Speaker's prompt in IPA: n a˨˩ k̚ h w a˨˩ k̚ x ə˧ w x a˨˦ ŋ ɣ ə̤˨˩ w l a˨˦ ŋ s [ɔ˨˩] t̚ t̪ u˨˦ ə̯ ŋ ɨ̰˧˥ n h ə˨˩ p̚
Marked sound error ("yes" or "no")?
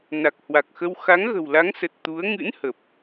yes